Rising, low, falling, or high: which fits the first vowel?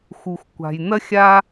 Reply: low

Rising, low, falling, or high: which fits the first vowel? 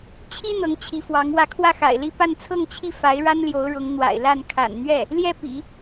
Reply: high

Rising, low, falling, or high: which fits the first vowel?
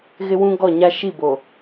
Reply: high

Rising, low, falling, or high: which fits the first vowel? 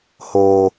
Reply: low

